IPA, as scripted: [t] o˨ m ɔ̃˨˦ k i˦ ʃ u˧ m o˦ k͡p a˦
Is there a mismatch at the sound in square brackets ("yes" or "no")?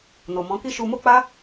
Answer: yes